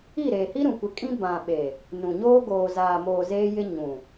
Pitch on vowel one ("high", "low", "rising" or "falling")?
falling